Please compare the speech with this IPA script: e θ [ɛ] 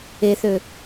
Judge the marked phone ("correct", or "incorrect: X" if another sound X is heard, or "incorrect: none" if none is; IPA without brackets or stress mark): incorrect: ø